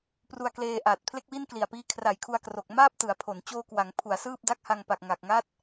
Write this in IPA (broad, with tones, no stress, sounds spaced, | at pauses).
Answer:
p r u˧ a̯ k l eː˧ ʔ aː˨˩ t̚ pʰ l e˥˩ k̚ w i˥˩ n k l i˨˩ a̯ p iː˦˥ kʰ r a˨˩ j kʰ u˧ a̯ k r o˨˩ k̚ m aː˥˩ p̚ t ɯ˩˦ a̯ pʰ o˩˦ n t͡ɕ oː˧ k w a˩˦ ŋ pʰ u˩˦ a̯ s ɯː˥˩ p̚ d a˦˥ k̚ h a˧ ŋ p a˨˩ k̚ ŋ a˨˩ k̚ ŋ a˦˥ t̚